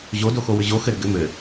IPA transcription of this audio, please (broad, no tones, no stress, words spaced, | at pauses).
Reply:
ʑodoxowʏ ʑo xɘɾə ɡɘ mɘ